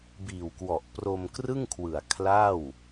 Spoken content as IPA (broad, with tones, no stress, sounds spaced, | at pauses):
b iː˨˩ w k w ɔ˨˩ ʔ p r o˧ m k r ɯ˥˩ ŋ kʰ w ɯ˨˩ a̯ kʰ l a˥˩ w